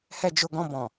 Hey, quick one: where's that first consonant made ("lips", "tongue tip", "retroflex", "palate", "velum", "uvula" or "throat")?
throat